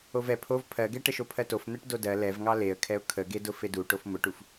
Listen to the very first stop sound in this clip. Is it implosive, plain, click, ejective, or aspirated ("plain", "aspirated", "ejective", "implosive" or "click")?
aspirated